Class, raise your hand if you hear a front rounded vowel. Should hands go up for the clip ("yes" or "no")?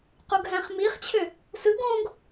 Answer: yes